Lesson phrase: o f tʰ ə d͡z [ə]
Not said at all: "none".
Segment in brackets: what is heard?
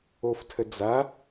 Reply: a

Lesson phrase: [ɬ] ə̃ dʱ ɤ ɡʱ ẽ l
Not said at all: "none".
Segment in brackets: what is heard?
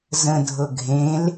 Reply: z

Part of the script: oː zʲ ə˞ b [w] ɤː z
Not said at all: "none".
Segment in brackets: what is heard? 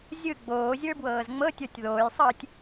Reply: w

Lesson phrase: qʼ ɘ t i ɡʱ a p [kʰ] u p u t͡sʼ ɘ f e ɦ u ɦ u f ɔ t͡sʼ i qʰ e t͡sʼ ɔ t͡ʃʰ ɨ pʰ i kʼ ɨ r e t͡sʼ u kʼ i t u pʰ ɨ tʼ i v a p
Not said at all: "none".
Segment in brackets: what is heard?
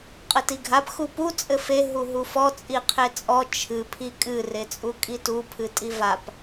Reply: x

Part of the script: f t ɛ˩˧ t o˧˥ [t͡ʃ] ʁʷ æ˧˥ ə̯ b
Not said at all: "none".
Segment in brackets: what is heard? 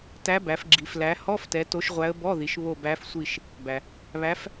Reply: ʃ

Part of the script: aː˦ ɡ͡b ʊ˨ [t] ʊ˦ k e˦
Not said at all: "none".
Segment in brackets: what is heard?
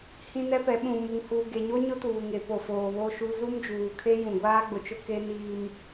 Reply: t͡ʃ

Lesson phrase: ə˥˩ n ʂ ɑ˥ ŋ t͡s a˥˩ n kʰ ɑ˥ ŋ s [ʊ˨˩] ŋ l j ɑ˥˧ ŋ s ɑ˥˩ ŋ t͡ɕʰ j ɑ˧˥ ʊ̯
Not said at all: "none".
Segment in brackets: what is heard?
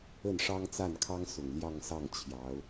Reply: ʊ˨˩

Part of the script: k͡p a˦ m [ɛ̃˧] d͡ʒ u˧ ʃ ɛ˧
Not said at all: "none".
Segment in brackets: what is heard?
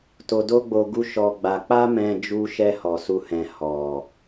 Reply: ɛ̃˧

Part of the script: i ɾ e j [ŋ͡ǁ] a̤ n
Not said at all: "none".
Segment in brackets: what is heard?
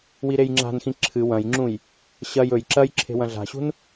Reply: ŋ͡ǁ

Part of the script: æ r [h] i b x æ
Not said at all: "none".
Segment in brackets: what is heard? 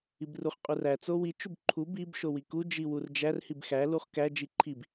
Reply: h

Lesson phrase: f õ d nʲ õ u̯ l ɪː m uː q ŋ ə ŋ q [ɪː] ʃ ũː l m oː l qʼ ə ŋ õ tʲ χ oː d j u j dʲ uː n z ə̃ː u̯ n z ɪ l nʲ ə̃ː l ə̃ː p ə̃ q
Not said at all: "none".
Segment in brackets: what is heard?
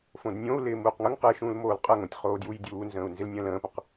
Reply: ɪː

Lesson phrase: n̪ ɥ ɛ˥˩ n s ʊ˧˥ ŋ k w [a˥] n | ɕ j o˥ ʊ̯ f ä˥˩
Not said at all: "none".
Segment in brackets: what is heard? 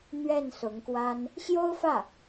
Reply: a˥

